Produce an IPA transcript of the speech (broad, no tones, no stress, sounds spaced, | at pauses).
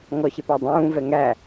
ŋ ɔ ɕ ɪ p æ dˤ ũː v ɛ ŋ æ